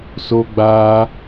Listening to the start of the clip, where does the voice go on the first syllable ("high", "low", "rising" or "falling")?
high